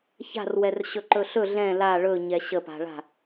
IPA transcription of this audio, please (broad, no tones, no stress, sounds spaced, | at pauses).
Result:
ç a̤ r w ɛ r ɕ ɵ ǃ ɵ ɬ ɵ ɮ ɛ̃ l a ɭ ɵ ɲ ɛ ɕ ə p a̤ ɭ a̤